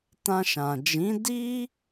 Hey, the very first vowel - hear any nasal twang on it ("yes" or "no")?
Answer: yes